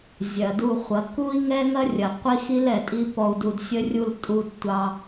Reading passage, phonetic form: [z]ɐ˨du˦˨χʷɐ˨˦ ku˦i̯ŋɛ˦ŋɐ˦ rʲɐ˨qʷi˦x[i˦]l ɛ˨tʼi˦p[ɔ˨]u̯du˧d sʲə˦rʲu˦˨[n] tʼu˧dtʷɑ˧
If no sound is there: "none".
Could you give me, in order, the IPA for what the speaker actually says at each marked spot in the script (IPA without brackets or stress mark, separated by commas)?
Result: zʲ, i˦, ɔ˧, l